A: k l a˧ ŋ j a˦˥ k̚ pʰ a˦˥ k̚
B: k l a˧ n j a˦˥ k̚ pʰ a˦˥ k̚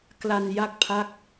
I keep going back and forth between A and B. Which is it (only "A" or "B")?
B